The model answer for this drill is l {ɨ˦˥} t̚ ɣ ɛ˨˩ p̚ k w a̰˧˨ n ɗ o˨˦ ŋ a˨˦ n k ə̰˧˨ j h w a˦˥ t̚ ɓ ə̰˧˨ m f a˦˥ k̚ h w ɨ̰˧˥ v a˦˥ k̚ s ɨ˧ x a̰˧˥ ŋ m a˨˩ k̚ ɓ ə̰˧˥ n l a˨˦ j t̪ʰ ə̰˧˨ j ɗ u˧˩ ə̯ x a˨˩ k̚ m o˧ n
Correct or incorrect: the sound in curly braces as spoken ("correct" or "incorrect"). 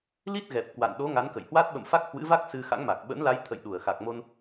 incorrect